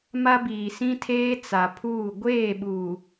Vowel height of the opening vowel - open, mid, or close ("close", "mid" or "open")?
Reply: open